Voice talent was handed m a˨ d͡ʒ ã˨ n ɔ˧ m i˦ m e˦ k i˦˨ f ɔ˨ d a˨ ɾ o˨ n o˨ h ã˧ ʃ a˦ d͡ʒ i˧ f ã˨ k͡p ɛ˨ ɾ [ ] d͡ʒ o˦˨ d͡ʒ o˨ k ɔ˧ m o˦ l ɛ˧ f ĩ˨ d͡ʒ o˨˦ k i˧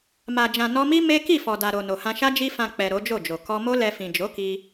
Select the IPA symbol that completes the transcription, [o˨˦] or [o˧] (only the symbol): o˨˦